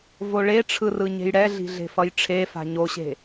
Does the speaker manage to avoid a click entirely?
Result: yes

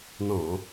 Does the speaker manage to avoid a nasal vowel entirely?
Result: no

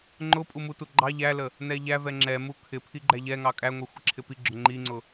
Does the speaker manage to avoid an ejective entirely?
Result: no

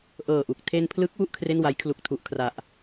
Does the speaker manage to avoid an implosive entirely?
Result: yes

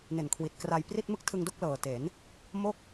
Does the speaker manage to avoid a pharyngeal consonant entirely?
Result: yes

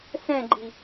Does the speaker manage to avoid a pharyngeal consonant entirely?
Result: yes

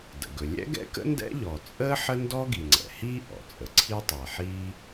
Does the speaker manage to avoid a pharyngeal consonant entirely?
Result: no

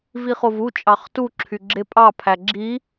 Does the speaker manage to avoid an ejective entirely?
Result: no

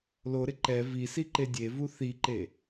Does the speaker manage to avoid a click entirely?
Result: no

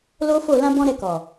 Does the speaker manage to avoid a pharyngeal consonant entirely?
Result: yes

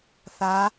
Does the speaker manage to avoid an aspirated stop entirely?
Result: yes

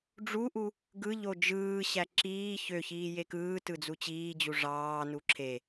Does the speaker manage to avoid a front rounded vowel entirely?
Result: no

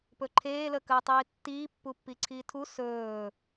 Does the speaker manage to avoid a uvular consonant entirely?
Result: yes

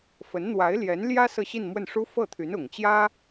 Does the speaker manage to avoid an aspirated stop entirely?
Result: no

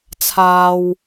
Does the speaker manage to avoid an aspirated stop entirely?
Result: no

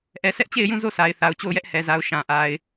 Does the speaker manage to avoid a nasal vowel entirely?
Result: no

